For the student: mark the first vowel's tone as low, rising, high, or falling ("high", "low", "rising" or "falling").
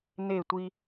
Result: falling